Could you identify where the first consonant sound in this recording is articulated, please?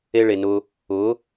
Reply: retroflex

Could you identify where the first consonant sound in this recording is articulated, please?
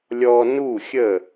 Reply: alveolar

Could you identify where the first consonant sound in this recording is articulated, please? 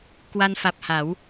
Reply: velar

